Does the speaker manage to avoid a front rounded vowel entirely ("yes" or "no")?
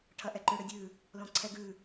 no